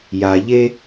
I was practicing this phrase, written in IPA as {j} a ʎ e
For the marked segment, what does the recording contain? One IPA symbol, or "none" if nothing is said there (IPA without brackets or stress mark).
j